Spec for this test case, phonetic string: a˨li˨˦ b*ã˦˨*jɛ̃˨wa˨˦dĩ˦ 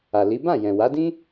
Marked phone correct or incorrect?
correct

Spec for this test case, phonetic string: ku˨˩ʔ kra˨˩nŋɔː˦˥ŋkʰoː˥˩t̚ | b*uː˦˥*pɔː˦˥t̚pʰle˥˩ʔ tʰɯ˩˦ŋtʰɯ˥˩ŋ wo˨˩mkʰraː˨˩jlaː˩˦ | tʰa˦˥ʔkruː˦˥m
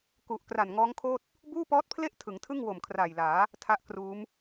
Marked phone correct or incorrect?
incorrect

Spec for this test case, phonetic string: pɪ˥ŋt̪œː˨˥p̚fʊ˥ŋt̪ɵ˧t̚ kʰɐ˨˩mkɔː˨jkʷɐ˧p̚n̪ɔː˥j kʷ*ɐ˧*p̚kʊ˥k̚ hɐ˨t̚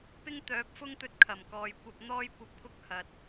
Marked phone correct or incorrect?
correct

